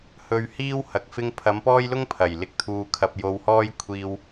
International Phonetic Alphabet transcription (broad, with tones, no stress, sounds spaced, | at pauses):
h ɵ˧ ɥ h iː˥ w h ɐ˨ k̚ f ɪ˧ ŋ pʰ ɐ˨˧ m p ɔː˥ j l ʊ˥ ŋ pʰ ɐ˨˩ j l ɪ˧ k̚ t̪ʰ uː˧ kʰ ɐ˧ p̚ j o˧ w h ɔː˥ j kʷʰ iː˧ w